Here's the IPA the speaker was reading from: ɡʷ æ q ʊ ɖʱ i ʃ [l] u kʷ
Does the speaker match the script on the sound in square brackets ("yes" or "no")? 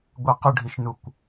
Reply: no